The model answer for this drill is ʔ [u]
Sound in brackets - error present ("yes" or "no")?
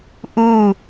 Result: no